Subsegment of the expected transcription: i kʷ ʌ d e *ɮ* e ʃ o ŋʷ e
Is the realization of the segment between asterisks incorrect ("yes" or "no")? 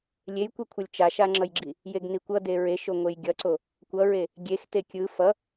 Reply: yes